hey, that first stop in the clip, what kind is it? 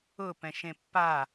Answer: plain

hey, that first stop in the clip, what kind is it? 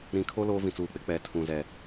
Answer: aspirated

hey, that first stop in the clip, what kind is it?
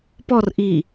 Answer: plain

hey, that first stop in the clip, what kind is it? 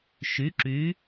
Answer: click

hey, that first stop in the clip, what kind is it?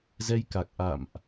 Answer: plain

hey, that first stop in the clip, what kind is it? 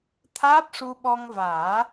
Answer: aspirated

